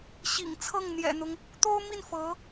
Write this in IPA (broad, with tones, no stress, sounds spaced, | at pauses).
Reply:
ɕ ḭ˨˩ ŋ t͡sʰ ɤ˥˩ ŋ n̪ j ɛ̰˨˩ n̪ ʊ˦ ŋ | t̪ o˥ ʊ̯ m i˥˩ n f ɤ˧˥